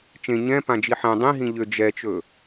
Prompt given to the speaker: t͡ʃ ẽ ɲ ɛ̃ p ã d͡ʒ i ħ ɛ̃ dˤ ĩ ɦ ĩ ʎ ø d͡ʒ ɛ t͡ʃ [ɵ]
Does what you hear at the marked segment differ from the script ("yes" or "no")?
no